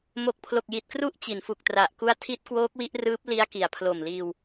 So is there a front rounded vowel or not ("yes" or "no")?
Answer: no